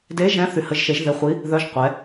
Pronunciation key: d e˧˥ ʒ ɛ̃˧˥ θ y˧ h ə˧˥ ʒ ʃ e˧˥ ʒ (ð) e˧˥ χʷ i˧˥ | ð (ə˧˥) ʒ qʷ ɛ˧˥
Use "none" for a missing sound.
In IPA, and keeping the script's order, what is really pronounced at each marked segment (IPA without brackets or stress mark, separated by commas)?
ð, œ˧˥